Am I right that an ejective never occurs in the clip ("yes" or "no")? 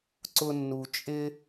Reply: no